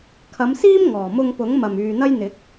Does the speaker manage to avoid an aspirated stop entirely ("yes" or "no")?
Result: no